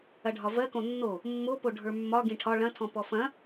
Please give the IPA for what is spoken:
ɐ ɖʱ ɒ v ɜ k õ nː o | mː o p o ɖʱ ə˞ mː ɒ ɡ ĩ ʈʰ ɒ ɭ ɐ̃ tʰ ɔ̃ p ɔ f ɐ̃

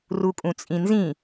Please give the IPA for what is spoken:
r u kʼ ũ t͡sʼ ĩ n z ĩ

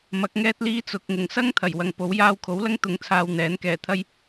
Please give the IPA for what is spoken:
m ɐ˨˥ k̚ ŋ ɛː˥ t̚ l iː˥ t͡s ʊ˨ k̚ ŋ ʊ˨˩ ŋ s ɐ˥ ŋ t̪ʰ ɐ˨˩ j w ɐ˨ ŋ p o˨˥ w j aː˧ w kʰ o˨˥ w l ɐ˥ ŋ t̪ ʊ˨˥ ŋ t͡sʰ aː˨ w n̪ ɛː˨˥ n k ɛː˨˩ t̪ʰ ɐ˥ j

